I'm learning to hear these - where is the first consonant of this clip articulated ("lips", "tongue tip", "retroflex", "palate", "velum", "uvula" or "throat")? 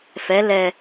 lips